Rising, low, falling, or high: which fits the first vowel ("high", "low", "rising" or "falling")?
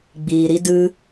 low